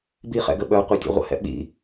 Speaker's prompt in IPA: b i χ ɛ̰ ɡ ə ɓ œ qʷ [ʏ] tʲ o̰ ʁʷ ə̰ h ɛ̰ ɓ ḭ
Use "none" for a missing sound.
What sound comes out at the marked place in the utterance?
ə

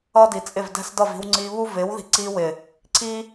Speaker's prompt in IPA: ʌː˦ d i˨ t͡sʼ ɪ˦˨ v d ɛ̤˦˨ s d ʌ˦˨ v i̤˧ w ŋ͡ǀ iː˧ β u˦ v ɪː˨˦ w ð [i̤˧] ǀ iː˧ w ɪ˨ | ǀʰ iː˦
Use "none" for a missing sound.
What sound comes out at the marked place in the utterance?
i̤˧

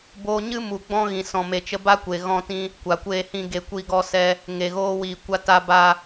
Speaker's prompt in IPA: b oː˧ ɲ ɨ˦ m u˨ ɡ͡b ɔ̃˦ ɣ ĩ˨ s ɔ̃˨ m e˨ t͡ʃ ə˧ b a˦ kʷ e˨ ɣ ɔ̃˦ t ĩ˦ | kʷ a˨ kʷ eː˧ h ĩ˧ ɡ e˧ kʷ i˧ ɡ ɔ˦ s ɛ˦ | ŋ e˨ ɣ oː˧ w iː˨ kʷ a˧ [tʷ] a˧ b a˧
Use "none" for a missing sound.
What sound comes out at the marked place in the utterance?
t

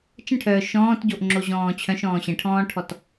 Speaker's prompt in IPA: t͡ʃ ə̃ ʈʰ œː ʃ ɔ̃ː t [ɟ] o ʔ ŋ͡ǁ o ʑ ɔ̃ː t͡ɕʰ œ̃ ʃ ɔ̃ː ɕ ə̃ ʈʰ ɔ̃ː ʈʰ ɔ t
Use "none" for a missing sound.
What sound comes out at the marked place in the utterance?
ɟ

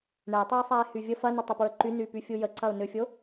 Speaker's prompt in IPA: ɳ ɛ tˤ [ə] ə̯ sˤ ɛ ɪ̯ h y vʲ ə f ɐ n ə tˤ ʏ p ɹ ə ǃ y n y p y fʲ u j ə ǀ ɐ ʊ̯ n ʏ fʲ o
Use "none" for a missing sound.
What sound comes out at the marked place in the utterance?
ɯ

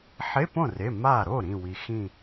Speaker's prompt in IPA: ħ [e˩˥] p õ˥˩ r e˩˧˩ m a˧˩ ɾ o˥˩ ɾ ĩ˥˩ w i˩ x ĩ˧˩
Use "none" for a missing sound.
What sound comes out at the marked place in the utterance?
e˧˥˧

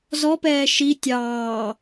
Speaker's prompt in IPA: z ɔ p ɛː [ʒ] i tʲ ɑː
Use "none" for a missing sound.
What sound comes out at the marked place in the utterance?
ʃ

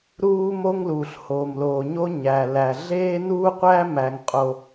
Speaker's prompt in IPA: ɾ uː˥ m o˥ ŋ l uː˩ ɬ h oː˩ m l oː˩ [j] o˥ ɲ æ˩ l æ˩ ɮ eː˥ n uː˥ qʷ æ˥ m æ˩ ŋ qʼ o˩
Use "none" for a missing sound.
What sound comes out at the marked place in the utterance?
ɲ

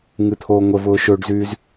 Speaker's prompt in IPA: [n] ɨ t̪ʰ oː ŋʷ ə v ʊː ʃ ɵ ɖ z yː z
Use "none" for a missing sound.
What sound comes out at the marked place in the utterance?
ŋ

